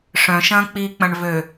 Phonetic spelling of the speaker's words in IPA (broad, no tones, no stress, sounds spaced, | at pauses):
ʂ œ̃ ʃ ɐ̃ː k͡p iː k͡p ɐ̃ ɳ v ø